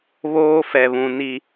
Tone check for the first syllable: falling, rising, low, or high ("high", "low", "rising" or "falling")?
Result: high